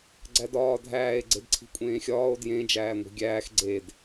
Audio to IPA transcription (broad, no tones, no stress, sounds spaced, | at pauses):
ɡ͡ǀ æ d ɒː dʱ æː e̯ ɡ͡ǀ e d ǀʰ i̤ kʷʼ ẽː xʲ ɒː o̯ d j ẽ d͡ʒ æː ŋʷ i̤ ɡʲ æː x ɡ͡ǀ e d